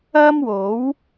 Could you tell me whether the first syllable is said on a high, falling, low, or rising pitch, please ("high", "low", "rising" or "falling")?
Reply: high